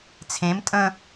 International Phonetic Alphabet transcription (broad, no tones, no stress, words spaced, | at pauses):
t͡sʰẽm tʼə̃